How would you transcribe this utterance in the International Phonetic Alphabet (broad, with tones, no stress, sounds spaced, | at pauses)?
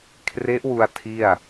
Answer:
kʰ r e˦˥ ʔ w u˧ a̯ tʰ i˥˩ a̯